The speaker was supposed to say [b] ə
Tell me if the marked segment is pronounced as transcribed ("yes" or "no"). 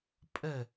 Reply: no